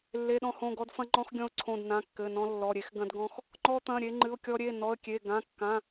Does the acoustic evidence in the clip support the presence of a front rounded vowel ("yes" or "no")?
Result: no